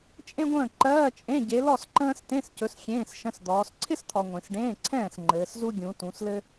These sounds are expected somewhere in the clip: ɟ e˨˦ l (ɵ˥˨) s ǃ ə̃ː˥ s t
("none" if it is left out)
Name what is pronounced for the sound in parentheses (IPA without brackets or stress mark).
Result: ɔ˥˨